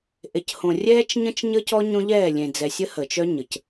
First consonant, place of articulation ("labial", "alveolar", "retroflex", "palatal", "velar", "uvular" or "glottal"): glottal